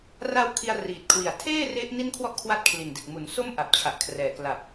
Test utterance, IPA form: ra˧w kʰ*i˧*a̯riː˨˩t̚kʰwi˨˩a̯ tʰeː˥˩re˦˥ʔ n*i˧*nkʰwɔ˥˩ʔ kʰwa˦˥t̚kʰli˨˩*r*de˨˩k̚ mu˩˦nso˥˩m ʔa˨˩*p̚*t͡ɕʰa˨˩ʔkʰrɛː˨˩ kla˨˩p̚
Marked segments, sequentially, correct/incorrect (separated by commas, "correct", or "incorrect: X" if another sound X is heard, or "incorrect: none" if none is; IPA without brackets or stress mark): correct, incorrect: i˥˩, incorrect: n, correct